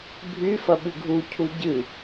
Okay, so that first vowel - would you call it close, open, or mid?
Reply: close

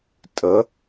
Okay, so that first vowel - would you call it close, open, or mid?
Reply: mid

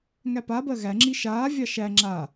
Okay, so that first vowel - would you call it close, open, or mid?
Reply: open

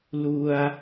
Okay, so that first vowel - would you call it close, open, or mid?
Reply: close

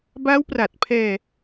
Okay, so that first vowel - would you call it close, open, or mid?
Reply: open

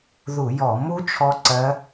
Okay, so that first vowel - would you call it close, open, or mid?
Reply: close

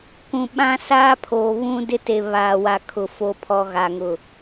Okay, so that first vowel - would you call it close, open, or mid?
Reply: close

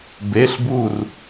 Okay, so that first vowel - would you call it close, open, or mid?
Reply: mid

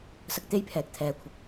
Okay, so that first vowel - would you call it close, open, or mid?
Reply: open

